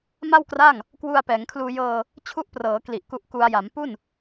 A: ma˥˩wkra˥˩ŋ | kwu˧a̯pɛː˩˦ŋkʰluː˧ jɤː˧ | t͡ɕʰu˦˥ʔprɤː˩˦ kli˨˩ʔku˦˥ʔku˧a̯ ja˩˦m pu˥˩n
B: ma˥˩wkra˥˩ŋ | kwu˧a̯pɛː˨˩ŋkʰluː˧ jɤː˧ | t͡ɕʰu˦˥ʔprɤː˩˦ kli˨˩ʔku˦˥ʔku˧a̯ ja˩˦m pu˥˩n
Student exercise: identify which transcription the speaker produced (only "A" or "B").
A